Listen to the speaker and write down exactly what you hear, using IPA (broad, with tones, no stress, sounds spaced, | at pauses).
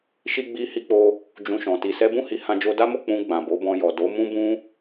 ʃ i˧ ɡ͡b i˧ h i˧ k͡p o˧ | d͡ʒ ũ˧ ʃ ɔ̃˨ t i˨ s ɛ˧ b ũ˦ h i˦ h ã˧ d͡ʒ o˧ d a˦ m o˦˨ k͡p ũ˧ ɡ͡b ã˨ b o˨˦ b ɔ̃˧ j ɔ˨ d o˨˦ m ũ˦ b ũ˦